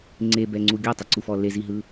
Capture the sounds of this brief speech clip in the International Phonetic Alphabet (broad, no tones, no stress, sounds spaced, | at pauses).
ŋ͡ǀ e b ɛ ŋ͡ǀ u ɡʲ ɔ tˤ ɛ ǀ u f ɔ l e z i ɦ ɯ